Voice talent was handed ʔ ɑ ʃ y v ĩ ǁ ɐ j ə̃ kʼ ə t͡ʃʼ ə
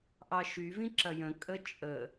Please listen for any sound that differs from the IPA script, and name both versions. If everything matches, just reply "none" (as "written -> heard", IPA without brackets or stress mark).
none